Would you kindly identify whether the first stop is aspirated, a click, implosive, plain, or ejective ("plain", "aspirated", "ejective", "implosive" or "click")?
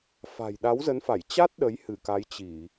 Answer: implosive